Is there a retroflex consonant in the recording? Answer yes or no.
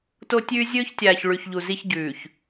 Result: yes